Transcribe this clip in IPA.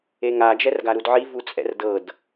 e ŋ a d͡ʒ ɛ r ɡ a ɾ u d ʕ i v u t͡sʼ ɛ̰ r d ɤ d

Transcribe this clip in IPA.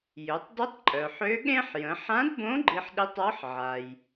j ø˩˧ tˤ d i˧˥ tˤ ǃʼ œ˩ ħ ø˧˥ ɠ ẽ˥ ħ j ə̃˩˧ ħ ã˧˥ d b õ˧˥ ɡ͡ǃ i˧ ħ ɗ i˧˥ tˤ ɔ˧˥ ħ ʕ a˩ j

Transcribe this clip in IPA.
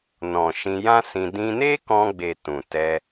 n ɔ̃˨ ʃ ĩ˧ j ã˦ s ĩ˧ d ĩ˧ n e˦ k ɔ̃˧ ɡ͡b e˨ t ũ˨ t ɛ˧

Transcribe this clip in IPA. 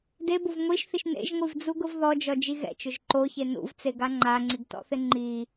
d e b o v ŋʷ i ʃ θ i ʃ n ḛ ʒ ŋʷ i v d͡z u ɡ ʊ v ð ɔ d͡ʒ ɔ d͡ʒ i ɣ ɛ̰ t͡ʃ ʊ ʒ ǃ o ç e n ṵ v t͡s e ɡ a ŋ͡ǃ a ŋ͡ǀ i ɡ t ɔ̰ θ ɪ ŋ͡ǃ i

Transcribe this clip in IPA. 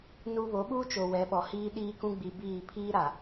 n u˦ β o˨˦ ɓ uː˦ t͡ʃ o˨ w ɛ˨˦ ɓ ɔ˨ h iː˦ ɗ iː˦ k ũ˦ ɡ͡b i˨ b iː˦˨ pʰ iː˦ ɾ a˨

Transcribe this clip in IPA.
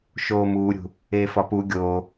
ʃ oː m uː ɾʲ ṳ | eː f ɒ p u ɡʲ oː

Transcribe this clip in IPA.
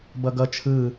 b ʌ ɡ ʌ t͡ʃʰ ɯ

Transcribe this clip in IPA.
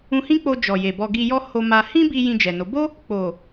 ũ˧ h ĩ˦ k͡p o˧ d͡ʒ ɔ˨ j e˨ b ɔ˧ ɡ i˧ j ɔ˦ h o˧ m a˧ h ĩ˦ b i˧ j ĩ˧ d͡ʒ ɛ˨ n o˨˦ b o˦ | k͡p o˨

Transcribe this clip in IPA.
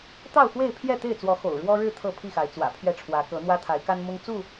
t̪ ɑ˥˨ ʊ̯ x w e˥˨ ɪ̯ pʰ j ɛ˥˨ t̪ e˥˨ ɪ̯ t͡s w ɔ˨˦ x o̰˨˩ ʊ̯ ɻ w ɔ˦ ɻ ɻ̩˥˨ t̪ʰ ɤ˥˨ pʰ i˥˨ x a˨˦ ɪ̯ t͡s w ä̰˨˩ pʰ ɥ ɛ˥˨ ʈ͡ʂʰ w ä˨˦ k ɤ˨˦ n̪ w ä˦ t̪ʰ a˨˦ ɪ̯ k a˦ n m ʊ˦ ŋ t͡s u˥˨

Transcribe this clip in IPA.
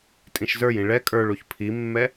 tʼ ĩ ʃ z ə˞ j ĩ ɭ ɛ kʼ ə˞ ɭ u ç pʰ i mː ɛ

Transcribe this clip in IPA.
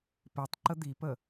p e tˤ ǃ ə d̪ i p ə

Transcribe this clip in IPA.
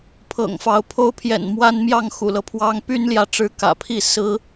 pʰ ɤ̰˨˩ ŋ f ɑ˨˦ ʊ̯ pʰ o˦ ʊ̯ pʰ j ɛ̰˨˩ n m w a˦ n m j ɑ˥˨ ŋ x ṵ˨˩ l ɤ˦ pʰ w ɑ˦ ŋ p y˦ n l j ä˨ ʈ͡ʂ ɻ̩˦ k ä̰˨˩ pʰ i˥˨ s ɹ̩˦

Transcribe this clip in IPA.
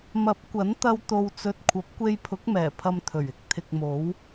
m ɐ˨˥ p̚ kʷ ɐ˨˥ n t̪ ɐ˧ w t̪ o˧ w t͡s ɵ˧ t̚ kʷʰ ɐ˨˥ p̚ kʷ e˧ j pʰ ʊ˨˥ k̚ m ɛː˨˩ pʰ ɐ˧ m t̪ʰ ɵ˨˩ ɥ ɪ˥ k̚ t̪ʰ ɪ˧ k̚ m o˨˥ w

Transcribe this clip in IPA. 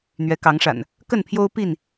n̪ ɥ ɛ˨˦ k ɑ˨˦ ŋ ʂ a̰˨˩ n | k ə˥˨ n pʰ j o˦ ʊ̯ p i˥˨ n

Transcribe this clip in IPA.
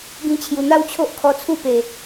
ɡ ĩ˧ t͡ɕʰ j u˨˩ n̪ a˦ w t͡ɕʰ o˦ ʔ kʰ ɔ˧ t͡sʰ u˥˧ p e˨˩

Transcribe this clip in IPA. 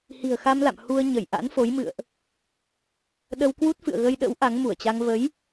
h i̤˨˩ ə̯ x a˧ m l a̰˧˨ m h u˧ ə̯ ɲ ə˧˩ j ʔ a̰˧˥ n f o˨˦ j m ɨ̰˧˨ ə̯ ʔ | ɗ ə˧ w k w u˦˥ t̚ f ɨ̰˧˨ ə̯ ɣ ə˧ j ɗ ə̰˧˥ w ʔ a˨˦ ŋ m u˧˩ ə̯ t͡ɕ a˧ ŋ v ə˨˦ j

